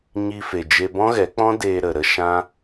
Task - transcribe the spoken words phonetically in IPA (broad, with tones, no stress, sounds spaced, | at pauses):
ɲ i˧ f e˨ d͡ʒ e˧ b ɔ̃˦ ɣ ɛ˨˦ k͡p ɔ̃˦ d eː˧ ɾ ə˨ ɾ ə˦ ʃ ã˦